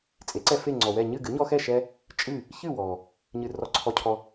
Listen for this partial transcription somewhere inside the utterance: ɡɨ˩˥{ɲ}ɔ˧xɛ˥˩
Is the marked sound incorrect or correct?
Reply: correct